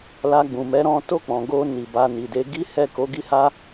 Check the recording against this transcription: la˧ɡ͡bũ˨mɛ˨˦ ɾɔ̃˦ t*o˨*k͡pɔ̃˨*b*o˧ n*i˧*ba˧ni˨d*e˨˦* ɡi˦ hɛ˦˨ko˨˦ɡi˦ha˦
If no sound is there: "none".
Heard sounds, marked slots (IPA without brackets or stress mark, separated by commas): o˦˨, ɡ, i˨, e˨˦